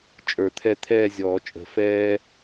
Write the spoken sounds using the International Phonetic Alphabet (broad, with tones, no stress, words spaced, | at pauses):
t͡ʃʼə˞˨˩˦t̪ʰɛ˦˨ t̪ʰɛː˦˨zʲɔː˨˩˦t͡ʃʼə̤˨˩˦ fɛː˥